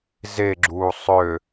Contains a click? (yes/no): yes